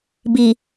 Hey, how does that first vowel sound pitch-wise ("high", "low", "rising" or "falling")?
low